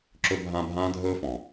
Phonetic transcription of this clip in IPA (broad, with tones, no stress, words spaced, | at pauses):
ǁɵ˥bʱã˥ bʱãː˥dʱɵː˥fɔ̃˩